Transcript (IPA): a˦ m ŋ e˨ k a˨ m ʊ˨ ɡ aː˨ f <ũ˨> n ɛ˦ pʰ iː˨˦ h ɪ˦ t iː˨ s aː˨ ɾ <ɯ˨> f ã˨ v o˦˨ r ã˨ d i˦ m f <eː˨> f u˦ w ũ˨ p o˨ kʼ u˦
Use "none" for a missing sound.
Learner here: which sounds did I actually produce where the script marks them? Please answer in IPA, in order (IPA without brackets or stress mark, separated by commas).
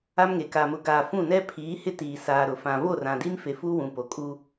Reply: ũ˦˨, ʊ˨, e˨